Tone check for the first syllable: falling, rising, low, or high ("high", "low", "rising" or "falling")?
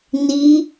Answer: rising